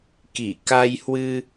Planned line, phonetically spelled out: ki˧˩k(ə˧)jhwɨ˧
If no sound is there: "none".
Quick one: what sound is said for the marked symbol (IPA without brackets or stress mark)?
a˧